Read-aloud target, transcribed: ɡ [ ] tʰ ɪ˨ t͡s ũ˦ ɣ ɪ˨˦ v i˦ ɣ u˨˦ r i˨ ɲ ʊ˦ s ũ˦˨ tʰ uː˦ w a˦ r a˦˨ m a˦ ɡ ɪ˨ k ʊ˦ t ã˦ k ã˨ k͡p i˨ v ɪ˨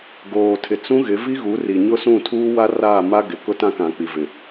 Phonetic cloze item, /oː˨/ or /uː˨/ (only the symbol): oː˨